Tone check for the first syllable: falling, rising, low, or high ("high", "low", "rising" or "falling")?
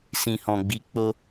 low